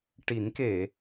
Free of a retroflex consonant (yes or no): no